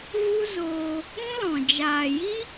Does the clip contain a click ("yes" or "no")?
no